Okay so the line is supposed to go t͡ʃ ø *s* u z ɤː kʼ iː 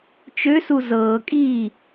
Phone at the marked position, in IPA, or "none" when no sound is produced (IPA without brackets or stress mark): s